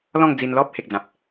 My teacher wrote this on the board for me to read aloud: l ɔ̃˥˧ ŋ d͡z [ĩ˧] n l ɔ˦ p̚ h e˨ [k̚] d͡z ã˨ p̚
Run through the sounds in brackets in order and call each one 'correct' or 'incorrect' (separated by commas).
incorrect, correct